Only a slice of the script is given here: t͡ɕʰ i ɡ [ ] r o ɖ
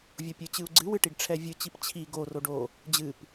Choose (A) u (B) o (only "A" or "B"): B